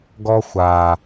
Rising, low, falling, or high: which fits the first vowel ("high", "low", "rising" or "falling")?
high